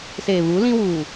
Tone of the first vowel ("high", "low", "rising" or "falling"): low